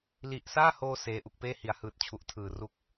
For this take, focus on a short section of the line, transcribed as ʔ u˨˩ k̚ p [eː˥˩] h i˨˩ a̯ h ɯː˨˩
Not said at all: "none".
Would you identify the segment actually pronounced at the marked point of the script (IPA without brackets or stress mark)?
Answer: eː˥˩